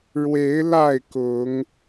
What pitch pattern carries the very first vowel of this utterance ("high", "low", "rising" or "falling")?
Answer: rising